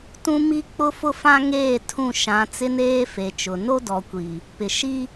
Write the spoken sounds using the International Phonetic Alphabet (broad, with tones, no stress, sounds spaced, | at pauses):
t ũ˦ m i˦ k͡p ʊ˦ f ʊ˦ f ã˦ ŋ eː˦˨ tʰ ũ˦˨ ʃ ã˨˦ t͡s ɪ˦ n eː˦ f e˨ t͡ʃ ʊ˨ n o˦ d ɔ˨ kʷ i˨ | p ɪ˨ ʃ i˦